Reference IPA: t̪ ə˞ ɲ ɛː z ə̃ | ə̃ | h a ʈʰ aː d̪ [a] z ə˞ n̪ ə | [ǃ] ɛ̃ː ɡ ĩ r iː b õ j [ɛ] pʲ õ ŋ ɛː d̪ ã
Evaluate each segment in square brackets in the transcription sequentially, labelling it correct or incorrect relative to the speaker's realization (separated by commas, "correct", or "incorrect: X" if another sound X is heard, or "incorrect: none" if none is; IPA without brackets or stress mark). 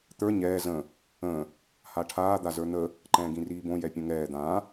correct, correct, correct